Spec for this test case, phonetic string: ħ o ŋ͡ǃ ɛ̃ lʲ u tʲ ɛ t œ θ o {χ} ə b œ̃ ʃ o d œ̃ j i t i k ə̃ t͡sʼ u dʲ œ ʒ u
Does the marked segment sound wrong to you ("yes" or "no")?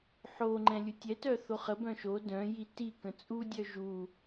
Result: no